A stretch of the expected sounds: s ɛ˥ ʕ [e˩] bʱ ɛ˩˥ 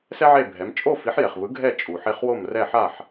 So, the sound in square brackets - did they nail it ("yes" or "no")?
no